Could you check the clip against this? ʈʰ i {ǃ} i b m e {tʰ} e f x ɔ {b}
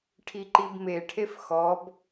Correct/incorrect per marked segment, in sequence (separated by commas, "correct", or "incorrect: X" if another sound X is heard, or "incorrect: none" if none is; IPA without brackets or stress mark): correct, incorrect: ʈʰ, correct